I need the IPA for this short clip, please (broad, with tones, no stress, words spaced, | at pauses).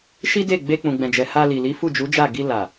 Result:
ʃi˦de˦˨ ɡ͡be˧k͡pũ˨ɡ͡bɛ̃˨d͡ʒɛ˨ ha˧li˨li˨˦ fu˦˨d͡ʒu˨˦d͡ʒa˦˨ ɡi˧la˨